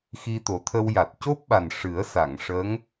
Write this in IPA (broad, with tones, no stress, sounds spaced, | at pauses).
x i˧ t̪ o˨˩˦ t̪ʰ ə˧ w j a˨˩ t̚ c o˦˥ p̚ ɓ a˨˩ n ʂ ɨ˨˩˦ ə̯ s a˨˩˨ ŋ ʂ ə˧˥ ŋ